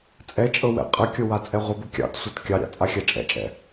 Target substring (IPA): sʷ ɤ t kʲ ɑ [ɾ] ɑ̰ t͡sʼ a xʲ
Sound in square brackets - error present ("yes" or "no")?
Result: yes